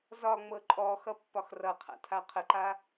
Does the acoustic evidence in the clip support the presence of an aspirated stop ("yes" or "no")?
yes